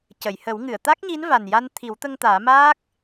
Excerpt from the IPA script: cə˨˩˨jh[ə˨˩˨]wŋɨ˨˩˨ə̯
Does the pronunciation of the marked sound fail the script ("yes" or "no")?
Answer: yes